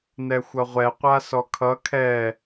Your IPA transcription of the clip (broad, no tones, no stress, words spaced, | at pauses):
nɛxʷʌʁʷɛ qʷasɔkʰʌ kʰɛ